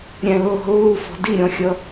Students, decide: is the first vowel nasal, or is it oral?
nasal